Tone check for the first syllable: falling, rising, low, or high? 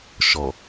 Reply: low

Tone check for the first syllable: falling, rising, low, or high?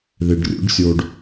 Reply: low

